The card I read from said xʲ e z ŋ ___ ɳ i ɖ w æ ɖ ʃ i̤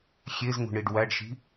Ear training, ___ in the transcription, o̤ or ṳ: ṳ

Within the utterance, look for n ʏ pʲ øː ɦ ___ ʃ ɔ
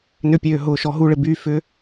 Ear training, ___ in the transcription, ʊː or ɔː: ʊː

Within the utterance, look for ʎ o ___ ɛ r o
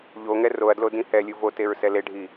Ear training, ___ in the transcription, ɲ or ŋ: ŋ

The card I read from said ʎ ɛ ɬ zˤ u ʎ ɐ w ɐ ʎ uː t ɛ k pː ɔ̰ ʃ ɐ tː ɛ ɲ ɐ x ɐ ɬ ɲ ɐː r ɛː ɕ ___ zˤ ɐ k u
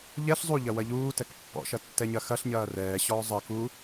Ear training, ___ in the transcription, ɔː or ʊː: ɔː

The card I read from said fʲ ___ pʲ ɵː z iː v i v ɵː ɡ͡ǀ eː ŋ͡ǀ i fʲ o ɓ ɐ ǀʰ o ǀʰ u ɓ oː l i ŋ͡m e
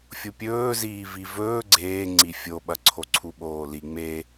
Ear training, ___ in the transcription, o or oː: o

